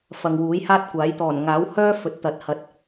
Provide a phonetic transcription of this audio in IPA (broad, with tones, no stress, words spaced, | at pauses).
fɐ˨ŋwuː˨˥j haː˥t̚kʷaː˨˥j t̪ɔː˨˩nŋaː˨˥w hœː˥ fɵ˨˥t̚t̪ɐ˨t̚ hɐ˨t̚